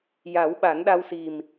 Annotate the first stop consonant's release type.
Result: implosive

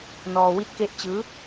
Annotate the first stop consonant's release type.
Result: plain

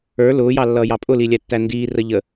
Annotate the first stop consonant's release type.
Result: ejective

